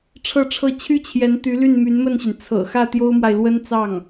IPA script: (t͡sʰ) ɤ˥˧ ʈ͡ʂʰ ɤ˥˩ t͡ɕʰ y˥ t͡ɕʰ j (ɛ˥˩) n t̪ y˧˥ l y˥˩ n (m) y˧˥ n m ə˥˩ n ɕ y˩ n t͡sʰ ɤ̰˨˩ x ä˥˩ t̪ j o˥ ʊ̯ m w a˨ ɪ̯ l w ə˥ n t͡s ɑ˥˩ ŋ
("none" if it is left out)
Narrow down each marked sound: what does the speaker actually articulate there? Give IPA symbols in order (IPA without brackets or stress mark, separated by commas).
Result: ʈ͡ʂʰ, ɛ˧˥, m